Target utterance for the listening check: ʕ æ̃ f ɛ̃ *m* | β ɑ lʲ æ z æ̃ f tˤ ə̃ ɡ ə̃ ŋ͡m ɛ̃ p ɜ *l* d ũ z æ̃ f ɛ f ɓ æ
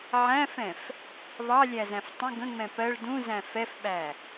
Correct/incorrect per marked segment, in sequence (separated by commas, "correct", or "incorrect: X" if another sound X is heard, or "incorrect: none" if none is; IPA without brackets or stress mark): incorrect: f, incorrect: ɭ